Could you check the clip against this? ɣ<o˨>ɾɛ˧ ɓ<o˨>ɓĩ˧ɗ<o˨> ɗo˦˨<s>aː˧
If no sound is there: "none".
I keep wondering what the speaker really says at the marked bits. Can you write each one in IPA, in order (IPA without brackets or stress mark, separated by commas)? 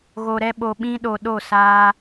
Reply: o˨, o˨, o˨, s